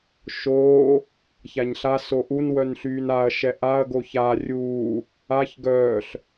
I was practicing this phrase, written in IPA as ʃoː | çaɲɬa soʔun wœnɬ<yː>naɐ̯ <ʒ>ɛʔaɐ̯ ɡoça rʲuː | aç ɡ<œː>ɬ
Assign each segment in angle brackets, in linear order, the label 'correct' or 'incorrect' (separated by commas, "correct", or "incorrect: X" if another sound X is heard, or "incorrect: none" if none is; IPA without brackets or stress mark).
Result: correct, incorrect: ʃ, correct